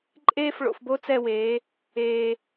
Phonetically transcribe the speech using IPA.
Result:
ǃʼeː˦f ɭo̰˨fbo˦ t͡sɛ˦˨weː˨˦ | eː˨

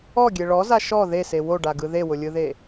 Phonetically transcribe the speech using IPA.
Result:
ɔɡʲe ɭɔza ʃɔ ðese woɖaɡɯ ðewʊlʲɯðe

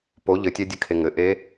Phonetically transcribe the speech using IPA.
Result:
po ʎɘtʲɛdʲɨkʰe ŋɘʔe

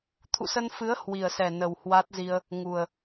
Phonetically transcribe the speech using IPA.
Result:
t̪ʰṵ˧˨sə˧nfɨ˨˦ə̯ hwi˨˩ə̯sɛ˨˩ nə˨˩whwa˦˥t̚zi˧ə̯ | ŋu˨˩ə̯

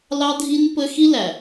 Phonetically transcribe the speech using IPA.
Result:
lɑ˦dʱi˦n pə˦ xi˦læ˨

